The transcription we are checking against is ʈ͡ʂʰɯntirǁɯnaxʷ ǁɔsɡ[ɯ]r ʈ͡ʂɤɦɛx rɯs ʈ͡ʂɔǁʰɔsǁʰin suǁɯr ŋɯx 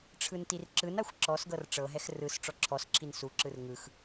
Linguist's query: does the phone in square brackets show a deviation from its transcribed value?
yes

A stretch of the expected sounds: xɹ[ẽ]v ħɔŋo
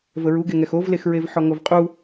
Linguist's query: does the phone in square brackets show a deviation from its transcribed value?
yes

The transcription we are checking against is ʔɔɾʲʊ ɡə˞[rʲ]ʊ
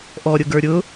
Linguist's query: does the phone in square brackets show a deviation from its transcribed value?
yes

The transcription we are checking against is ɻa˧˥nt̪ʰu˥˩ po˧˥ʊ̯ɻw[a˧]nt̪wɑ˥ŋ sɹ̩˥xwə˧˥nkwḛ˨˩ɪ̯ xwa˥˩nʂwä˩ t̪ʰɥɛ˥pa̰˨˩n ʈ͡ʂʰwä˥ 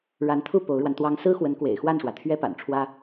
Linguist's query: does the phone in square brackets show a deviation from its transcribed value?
no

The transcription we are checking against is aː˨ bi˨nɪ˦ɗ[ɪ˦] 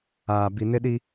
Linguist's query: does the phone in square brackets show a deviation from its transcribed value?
yes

